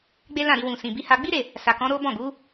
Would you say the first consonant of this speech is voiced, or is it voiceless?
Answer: voiced